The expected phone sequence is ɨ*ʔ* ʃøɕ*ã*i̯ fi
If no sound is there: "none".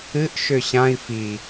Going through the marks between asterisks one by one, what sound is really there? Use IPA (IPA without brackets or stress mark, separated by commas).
ʔ, ã